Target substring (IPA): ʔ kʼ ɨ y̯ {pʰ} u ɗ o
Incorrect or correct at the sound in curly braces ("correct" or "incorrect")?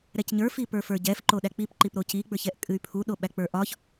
correct